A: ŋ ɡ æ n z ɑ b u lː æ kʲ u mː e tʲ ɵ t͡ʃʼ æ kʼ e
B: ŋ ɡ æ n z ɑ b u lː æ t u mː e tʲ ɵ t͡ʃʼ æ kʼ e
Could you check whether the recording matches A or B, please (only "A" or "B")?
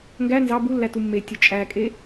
B